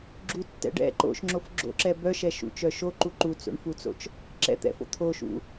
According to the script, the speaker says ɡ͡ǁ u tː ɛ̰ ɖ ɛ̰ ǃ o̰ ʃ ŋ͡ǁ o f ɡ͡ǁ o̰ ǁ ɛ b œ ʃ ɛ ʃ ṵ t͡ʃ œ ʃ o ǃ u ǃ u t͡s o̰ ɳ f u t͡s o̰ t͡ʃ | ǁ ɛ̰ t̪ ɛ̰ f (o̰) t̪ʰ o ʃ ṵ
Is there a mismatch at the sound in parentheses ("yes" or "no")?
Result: no